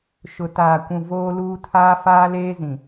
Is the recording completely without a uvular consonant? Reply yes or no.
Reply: yes